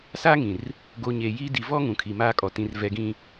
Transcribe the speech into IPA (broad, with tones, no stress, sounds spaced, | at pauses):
s aː˦ ŋ ĩ˨ r | ɡ o˨ ɲ eː˨ j iː˦ d i˨ v ɔ˦ ŋ ũ˨ kʰ i˨ m aː˦ kʼ ɔ˨ t ĩ˨ r v ɛ˨ ɡ ĩ˨